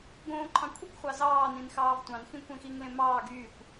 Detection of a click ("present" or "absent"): present